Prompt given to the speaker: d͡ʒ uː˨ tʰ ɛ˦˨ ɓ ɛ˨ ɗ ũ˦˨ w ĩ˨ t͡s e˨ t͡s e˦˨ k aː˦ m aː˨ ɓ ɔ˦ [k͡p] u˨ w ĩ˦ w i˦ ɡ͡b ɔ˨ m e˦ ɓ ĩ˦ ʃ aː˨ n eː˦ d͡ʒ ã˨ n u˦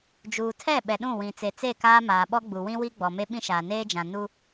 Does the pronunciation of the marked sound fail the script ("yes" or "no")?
yes